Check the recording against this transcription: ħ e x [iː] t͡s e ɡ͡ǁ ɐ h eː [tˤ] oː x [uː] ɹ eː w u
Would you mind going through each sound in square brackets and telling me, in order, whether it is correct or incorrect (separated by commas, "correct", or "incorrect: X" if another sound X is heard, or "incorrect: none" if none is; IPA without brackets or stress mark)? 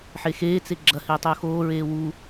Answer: incorrect: eː, correct, incorrect: oː